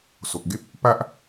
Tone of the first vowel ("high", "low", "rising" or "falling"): low